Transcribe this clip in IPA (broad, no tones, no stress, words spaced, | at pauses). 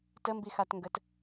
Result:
təmbixatŋɡət